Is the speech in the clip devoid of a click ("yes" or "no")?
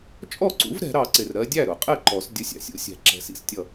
no